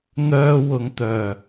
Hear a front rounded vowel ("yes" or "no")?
yes